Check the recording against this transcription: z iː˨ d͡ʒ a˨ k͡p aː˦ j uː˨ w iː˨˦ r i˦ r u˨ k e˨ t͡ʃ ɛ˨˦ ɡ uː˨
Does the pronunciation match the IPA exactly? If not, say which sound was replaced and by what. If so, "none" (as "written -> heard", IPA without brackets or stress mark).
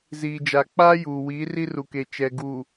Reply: ɛ˨˦ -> ɛ˨